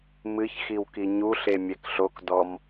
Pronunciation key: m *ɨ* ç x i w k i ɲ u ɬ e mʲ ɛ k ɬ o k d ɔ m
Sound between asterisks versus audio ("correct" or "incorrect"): correct